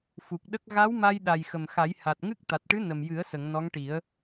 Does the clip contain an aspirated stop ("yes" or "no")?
no